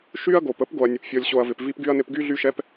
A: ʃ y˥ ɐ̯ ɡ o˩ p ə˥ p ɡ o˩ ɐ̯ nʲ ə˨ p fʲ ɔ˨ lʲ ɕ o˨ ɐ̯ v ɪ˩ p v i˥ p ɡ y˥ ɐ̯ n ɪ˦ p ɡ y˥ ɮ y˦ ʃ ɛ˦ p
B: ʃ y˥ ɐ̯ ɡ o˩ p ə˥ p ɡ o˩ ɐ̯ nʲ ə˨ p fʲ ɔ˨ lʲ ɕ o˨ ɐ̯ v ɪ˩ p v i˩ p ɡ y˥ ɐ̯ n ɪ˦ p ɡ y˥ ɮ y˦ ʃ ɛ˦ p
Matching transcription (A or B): A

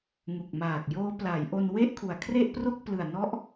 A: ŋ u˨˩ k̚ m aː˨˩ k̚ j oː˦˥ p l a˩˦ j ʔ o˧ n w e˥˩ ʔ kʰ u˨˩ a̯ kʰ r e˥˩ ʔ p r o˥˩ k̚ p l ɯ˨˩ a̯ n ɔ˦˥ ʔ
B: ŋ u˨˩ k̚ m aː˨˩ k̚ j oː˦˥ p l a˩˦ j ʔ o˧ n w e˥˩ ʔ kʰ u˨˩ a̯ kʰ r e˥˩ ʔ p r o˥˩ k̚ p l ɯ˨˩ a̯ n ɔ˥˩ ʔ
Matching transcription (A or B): A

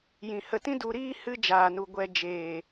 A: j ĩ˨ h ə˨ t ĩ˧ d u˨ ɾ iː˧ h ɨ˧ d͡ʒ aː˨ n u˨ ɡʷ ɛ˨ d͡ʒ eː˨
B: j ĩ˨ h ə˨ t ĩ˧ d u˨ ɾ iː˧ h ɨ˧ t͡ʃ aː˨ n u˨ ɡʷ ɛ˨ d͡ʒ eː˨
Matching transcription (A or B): A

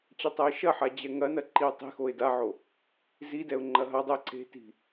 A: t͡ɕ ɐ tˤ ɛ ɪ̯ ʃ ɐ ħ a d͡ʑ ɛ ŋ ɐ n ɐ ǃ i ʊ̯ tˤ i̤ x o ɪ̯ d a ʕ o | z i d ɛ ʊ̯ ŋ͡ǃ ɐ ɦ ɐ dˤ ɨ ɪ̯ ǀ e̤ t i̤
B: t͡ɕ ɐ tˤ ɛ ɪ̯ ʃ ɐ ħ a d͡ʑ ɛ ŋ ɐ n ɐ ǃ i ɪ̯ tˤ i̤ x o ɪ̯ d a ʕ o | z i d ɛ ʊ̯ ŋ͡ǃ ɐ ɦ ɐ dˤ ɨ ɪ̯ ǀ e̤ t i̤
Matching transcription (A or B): A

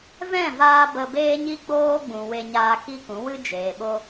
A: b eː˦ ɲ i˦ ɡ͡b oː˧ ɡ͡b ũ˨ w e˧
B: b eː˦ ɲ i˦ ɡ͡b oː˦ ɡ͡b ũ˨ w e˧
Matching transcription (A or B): B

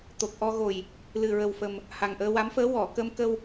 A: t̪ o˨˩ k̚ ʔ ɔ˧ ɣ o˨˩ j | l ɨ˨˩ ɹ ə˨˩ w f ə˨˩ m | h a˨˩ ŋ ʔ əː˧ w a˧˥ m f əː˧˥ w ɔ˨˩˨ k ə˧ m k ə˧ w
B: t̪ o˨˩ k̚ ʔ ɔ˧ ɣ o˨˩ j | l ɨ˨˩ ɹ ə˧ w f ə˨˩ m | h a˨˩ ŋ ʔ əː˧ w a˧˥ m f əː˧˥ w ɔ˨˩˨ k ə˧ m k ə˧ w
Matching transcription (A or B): A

